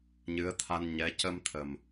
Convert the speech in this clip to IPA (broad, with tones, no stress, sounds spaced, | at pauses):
ɲ ɨ˧˥ ə̯ t̪ʰ a˧ n ɲ ɛ˧˥ c ə˧ m t̪ʰ ə˨˩ m